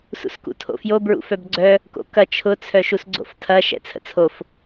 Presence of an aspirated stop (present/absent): present